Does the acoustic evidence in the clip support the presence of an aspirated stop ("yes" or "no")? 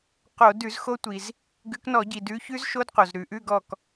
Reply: no